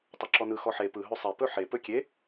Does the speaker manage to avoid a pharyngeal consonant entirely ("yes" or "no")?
no